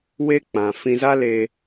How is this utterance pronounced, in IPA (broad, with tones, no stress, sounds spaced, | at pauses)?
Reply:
w e˧ k͡p ã˨ f ĩ˧ z a˦ l e˧